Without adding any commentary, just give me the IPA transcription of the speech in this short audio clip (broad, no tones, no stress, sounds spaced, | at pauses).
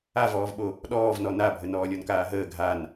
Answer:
a v ɔː v ɓ o | ɗ ɔː v n ɔ n a bʱ ə n ɔː lʲ ɔ n k aː ɦ əː ɡʱ a n